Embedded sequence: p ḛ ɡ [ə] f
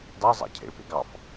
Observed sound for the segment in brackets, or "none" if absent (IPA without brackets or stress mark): ɑ